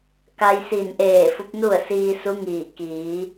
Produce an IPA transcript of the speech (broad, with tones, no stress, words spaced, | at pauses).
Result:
ka˧jsiː˧˩n ʔeː˧˩ fu˧˥p̚nu˥˨ə̯ siː˧su˧˥ŋiː˧˩ kiː˩˧